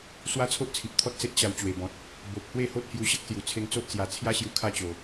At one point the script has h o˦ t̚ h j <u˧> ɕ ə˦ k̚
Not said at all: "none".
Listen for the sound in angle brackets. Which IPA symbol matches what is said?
u˧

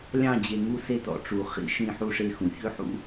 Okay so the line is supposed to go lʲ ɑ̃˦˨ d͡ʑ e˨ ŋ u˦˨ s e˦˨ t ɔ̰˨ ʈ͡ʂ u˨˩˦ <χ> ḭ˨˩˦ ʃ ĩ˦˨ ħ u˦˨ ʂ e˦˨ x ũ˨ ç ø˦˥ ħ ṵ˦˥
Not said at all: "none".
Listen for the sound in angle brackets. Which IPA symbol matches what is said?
χ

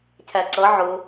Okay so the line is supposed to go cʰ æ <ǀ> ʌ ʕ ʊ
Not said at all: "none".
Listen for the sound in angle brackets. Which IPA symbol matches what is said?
ǀ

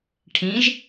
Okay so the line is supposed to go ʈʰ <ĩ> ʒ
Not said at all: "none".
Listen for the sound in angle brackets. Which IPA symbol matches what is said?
ĩ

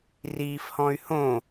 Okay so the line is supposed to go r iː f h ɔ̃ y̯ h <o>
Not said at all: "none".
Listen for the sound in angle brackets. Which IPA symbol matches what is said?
õ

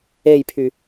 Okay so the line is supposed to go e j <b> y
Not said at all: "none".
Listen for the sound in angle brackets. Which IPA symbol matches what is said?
pʰ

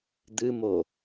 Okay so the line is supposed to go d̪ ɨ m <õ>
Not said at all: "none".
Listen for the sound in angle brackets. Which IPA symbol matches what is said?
o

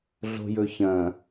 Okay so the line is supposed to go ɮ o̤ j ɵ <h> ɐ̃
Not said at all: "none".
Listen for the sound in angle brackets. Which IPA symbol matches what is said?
ç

